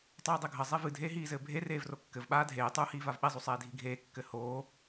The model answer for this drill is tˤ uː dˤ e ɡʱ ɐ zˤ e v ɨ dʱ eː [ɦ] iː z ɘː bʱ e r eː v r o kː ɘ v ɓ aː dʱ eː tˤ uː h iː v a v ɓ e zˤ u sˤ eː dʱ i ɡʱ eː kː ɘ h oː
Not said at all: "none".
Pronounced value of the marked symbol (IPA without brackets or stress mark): ɦ